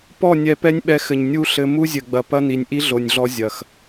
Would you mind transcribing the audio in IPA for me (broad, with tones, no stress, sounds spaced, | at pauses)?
p ɔ˦˨ nʲ ɛ˧ p ɛ˦ nʲ ɓ ɛ˧ x ɘ˨ ɲ nʲ u˦ ɬ ɘ˧ m u˦ zʲ ɘ˨ ɡ͡b ɐ˨ p ɐ˦ n i˨ nʲ ʔ i˦ ɮ o˨ nʲ ɮ ɔ˧ zʲ ɐ˨ x